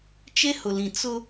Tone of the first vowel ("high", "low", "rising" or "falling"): high